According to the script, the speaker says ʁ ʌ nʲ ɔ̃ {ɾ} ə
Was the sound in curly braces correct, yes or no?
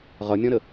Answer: yes